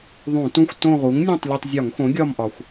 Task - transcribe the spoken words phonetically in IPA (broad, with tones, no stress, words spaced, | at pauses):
ðˤũ˧˩˧tũ˦˨xʷ tõ˦˨ʁu˩˥ŋnʲõ˦˨tˤ lʲo˦˨tˤ zʲɒ˧˩˧ŋxõ˩˥ ɡʲɒ˦˨mʔɒ˩xʷ